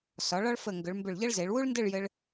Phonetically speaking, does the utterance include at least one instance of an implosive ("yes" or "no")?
no